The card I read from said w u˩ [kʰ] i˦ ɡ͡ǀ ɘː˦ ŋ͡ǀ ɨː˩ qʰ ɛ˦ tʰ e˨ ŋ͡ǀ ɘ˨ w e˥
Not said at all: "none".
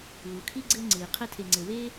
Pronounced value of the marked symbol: kʰ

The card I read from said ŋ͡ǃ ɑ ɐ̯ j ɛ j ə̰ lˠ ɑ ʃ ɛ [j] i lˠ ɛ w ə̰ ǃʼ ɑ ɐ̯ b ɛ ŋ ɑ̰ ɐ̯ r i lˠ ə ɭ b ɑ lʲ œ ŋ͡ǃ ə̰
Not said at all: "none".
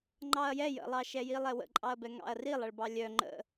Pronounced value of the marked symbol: j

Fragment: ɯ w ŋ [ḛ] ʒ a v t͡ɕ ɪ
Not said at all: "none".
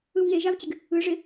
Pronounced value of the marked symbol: e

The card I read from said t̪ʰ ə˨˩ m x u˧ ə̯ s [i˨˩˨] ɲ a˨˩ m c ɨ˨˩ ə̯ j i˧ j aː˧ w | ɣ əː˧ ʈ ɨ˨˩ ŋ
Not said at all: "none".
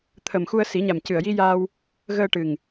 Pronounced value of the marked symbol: i˨˩˦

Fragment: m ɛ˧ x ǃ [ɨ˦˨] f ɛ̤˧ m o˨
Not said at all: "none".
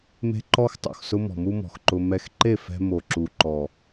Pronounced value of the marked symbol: e˦˨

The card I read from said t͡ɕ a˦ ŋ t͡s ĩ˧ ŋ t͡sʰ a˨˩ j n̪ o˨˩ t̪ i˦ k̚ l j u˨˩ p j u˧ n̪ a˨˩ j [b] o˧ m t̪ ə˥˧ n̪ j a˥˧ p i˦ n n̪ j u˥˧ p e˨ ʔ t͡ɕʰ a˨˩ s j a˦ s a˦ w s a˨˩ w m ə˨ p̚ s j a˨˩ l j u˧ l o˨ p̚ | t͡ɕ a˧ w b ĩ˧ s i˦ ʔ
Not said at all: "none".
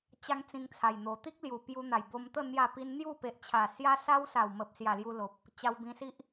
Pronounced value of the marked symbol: b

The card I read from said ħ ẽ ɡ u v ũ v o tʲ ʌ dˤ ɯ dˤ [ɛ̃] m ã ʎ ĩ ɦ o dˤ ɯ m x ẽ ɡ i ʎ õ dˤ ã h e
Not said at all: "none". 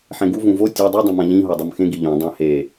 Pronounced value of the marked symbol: ɛ̃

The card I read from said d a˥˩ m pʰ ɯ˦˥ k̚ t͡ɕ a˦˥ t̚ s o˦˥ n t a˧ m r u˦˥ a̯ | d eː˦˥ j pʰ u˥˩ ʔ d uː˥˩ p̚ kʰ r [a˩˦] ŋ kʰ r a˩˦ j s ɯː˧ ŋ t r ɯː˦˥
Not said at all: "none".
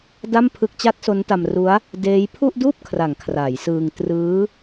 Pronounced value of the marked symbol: a˩˦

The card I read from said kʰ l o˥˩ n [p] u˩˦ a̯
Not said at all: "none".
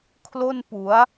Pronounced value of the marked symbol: p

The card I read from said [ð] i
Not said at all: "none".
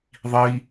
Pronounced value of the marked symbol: ðˤ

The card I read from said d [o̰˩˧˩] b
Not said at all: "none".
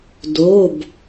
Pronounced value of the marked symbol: o˩˧˩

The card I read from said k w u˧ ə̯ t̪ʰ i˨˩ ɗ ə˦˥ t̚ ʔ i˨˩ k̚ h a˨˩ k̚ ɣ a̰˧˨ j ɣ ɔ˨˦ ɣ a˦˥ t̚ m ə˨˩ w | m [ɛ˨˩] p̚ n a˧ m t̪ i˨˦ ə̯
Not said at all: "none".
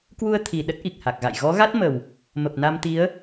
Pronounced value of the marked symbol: ə˨˩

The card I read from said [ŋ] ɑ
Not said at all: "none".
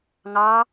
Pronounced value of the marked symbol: ŋ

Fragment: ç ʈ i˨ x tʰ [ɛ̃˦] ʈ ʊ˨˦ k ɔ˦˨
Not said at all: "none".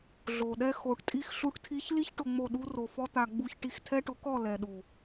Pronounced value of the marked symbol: ɛ˦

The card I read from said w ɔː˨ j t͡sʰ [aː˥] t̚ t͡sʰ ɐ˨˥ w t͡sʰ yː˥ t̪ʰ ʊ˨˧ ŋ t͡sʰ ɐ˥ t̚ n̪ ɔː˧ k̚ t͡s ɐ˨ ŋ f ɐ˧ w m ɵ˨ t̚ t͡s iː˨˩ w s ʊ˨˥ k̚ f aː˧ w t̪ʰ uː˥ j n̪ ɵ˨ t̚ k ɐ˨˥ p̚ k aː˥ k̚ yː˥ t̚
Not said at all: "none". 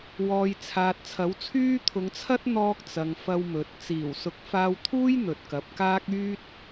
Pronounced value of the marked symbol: aː˨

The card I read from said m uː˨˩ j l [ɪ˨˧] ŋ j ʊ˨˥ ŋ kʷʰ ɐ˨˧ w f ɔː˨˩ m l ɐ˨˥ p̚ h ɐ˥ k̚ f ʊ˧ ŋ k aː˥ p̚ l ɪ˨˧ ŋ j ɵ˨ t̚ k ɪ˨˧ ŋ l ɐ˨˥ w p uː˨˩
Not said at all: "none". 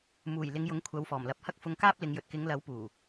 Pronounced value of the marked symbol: ɪ˨˧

